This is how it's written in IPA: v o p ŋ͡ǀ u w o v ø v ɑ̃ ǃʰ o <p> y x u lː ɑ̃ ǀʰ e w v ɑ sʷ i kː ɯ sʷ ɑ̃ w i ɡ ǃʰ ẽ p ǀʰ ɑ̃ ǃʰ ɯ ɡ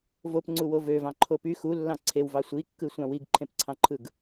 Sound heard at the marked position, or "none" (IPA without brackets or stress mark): p